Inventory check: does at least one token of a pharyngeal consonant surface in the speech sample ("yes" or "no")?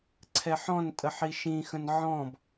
yes